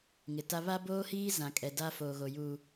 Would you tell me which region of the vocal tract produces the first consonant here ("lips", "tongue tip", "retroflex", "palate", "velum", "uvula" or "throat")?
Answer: velum